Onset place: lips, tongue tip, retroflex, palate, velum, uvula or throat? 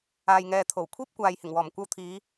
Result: palate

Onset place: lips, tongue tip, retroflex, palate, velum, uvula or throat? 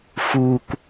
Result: lips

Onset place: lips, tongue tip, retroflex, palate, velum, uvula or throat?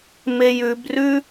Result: lips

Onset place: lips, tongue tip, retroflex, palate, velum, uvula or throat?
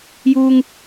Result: palate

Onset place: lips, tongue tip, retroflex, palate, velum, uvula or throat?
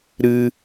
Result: tongue tip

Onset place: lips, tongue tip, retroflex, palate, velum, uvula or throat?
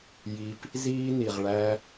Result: palate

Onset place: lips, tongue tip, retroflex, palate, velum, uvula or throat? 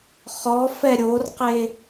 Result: uvula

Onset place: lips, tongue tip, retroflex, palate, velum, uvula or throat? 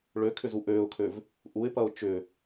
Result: retroflex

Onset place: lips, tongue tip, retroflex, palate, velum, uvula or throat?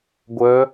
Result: velum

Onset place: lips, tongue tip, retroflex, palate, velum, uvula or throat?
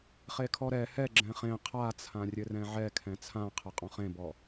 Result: uvula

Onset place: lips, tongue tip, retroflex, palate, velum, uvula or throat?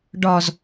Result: retroflex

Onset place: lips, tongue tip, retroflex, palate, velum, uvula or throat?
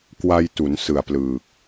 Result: velum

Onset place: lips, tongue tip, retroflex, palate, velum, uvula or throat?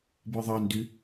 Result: lips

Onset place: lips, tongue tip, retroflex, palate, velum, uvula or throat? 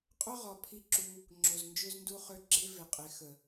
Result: uvula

